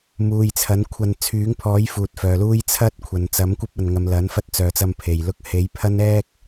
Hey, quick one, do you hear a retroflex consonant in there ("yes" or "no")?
no